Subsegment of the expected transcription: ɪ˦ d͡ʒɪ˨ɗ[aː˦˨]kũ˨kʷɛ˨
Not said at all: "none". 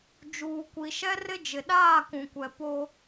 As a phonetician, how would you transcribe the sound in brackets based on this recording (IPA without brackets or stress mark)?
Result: aː˦˨